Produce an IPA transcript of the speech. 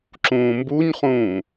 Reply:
ǁ ũː m b u ɲ χ ũː

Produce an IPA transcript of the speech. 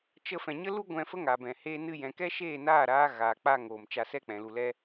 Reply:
t͡ʃ ə˧ f ɛ̃˨ ɲ ə˦ l u˦ ɡʷ ɛ̃˧ f ə˦ ŋ a˨ b ɛ̃˨ h eː˦ n ɨ˦ j ɛ̃˧ k ɛ˦ ʃ eː˦˨ n aː˦˨ ɾ aː˦ ɣ aː˨ k͡p a˧ ŋ oː˨ m t͡ʃ a˧ s ɛ˦ k͡p ɛ̃˨ l u˧ l ɛ˦

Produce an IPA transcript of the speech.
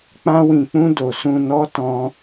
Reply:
k͡p ã˧ w ĩ˨ k͡p ũ˧ d o˨ s ũ˨ n ɔ˨˦ t ɔ̃˧

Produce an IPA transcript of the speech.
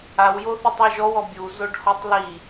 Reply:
a w j o θ i tˤ ɔ ʒ ɔ w ɔ bʲ u z o ɖ h ɔ tˤ l i

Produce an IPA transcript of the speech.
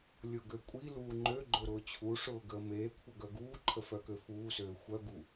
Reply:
lʲ ʊ ɡ ø kʷʼ i l uː ŋ͡ǃ ø ɡ͡ǃ ʊ ɾ ʊː t͡ɕʰ u ʂ ʊː ɡ əː m eː kʷʰ ə ɡ œ ɡ uː ǃʰ ə f œ k ø f uː s øː xʷ œ ɡ u

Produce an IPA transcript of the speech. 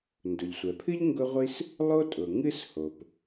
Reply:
n d ʊ˩ ʎ sʷ ɛ˩ pʰ ɨ˥ ʎ ŋ ɡ ʊ˥ ʁʷ i˥ s | lˠ o˥ tʼ ʊ˩ ŋ ɨ˥ s h o˩ p

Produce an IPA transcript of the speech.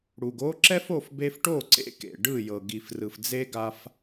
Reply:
ɽ u˨ ɡ o˦ ǁ ɛ˦ f o˦˨ f b e˧ f ʈ o˦˨ ǀ ḛ˧ k ḛ˨ ɖ ɯ˦˨ j ɤ˨ ɡ i˨ f r ɯ˨ f d͡z e˦ ɡ a˧ f

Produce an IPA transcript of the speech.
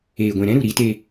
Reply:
eː˨ ɡʷ ɛ̃˨ ɾ ɛ̃˦ ɾ u˨ ɾ iː˧ t e˧

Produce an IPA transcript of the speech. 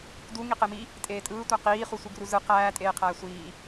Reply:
d u ŋ i q e m i | tʼ eː tʼ ɯː tʷ æ q iː χ u sʷ ɯ ɡ r u z ɯ q æː tʼ eː qʰ æː sʷ iː

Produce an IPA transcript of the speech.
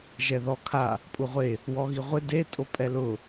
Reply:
ʒ ɛ ð ɔ kʰ a | pʼ u ʁʷ e | w ɔ ɣ i ʁʷ ɪ d e tʼ o pʼ ɛ l ʊ

